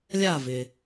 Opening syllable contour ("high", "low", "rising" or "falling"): falling